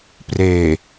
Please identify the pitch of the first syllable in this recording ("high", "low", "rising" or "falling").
low